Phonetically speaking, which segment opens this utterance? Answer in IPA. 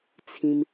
t͡sʰ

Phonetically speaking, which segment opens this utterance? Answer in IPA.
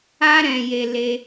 a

